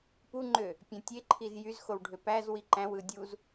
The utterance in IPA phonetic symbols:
p u ŋ͡ǃ ø | pʲ æ̃ tʲ e ǃʰ i z j y z x o w ɖʱ ø p æ z w i ǃ æ̃ w ɯ dʲ u z

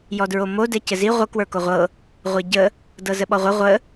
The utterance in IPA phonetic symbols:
j ɔ d ɹ o m o d ɛ c ɘ z i ʁʷ ə k w ə˞ k o ʁʷ ɤ | ʁʷ ɛ ɟ ə | d ɤ z ə ɓ ɔ ʁʷ ɘ ʁʷ ə

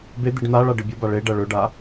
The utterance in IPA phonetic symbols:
b e d̪ i ɖ n̪ a ɭ a ɖ ɨ bʲ u b a ɭ e ɖ ɐ ɭ ɵ ɖ a

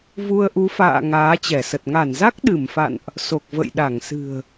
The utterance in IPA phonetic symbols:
v u˧ ə̯ ʔ u˨˦ f a̰ː˧˨ ŋ aː˨˦ t͡ɕ ɛ˧˩ s ə˨˩ t̚ ŋ a˧˩ n z a˦˥ k̚ ɗ ɨ˧˩ m f a̰˧˨ n ʔ | s o˨˩ k̚ v ə̰˧˨ j ɗ a˧˩ ŋ s ɨ̤˨˩ ə̯

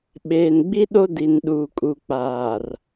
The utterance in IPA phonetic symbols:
ɓ eː˨ n ɡ͡b i˦ ɗ o˦ d i˨ n ɗ uː˨ kʼ u˨ k͡p aː˨ r

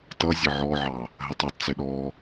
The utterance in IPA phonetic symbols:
t ʌ zʲ ə ʕ ɔ ʕ ɑ | ɦ ə tˤ ɛ tˤ t͡s ɪ ɗ ɔ

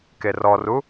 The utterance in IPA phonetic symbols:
k e r ɔ r u

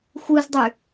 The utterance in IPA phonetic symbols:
xʷ ɯ z dˤ y

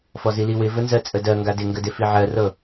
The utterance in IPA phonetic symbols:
f ɔ z i l i w ɪ v ə n z ɜ t͡sʼ ə d ɜ ŋ ɡ a d ɪ ŋ ɡ ə d ɪ f i ʕ ɜ r ɤ

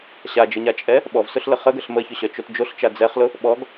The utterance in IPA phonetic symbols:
ɕ a d͡ʒ ə ɲ a t͡ʃʼ ɛ | ɓ ɔ v s ʊ ɬ l ə χ ə ɡ ə ɬ m ə ç ʊ ɕ œ t͡ʃ o t d͡ʒ o ɬ t͡ʃ a d͡z ɛ χ l ʊ | ɓ ɔ ɡ

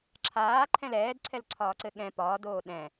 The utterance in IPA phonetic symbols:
ǁʰ aː ǃʰ ɛ̃ l ɛː d ǀʰ ɛ l ǀʰ ɒː ǀ ɘ ɠ ɛ̃ p ɒː d oː ɗ ɛ̃

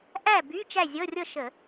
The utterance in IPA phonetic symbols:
ʔ æ˥˨ b y˧˥˧ t͡ʃ æ˥˨ zʲ ɤ˧˥˧ rʲ ɤ˥˨ ʃ ə˧˩˧

